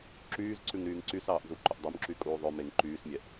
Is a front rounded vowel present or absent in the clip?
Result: present